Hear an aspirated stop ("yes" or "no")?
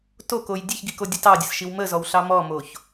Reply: no